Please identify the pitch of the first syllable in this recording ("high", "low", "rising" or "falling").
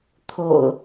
low